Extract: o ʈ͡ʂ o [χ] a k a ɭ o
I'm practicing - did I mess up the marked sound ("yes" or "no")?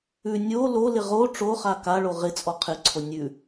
no